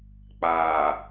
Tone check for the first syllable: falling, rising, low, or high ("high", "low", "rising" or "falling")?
low